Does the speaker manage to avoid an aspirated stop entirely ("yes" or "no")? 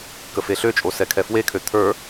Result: no